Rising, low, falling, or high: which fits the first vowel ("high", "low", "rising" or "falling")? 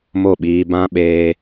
falling